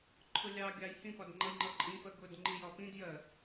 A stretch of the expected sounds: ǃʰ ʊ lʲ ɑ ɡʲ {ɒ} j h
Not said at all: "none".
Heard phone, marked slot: ɑ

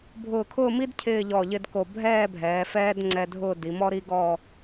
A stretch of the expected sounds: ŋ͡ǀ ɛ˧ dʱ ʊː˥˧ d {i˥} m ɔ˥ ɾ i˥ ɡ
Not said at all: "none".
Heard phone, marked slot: i˩˧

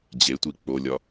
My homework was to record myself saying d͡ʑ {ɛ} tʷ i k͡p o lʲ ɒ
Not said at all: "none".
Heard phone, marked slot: e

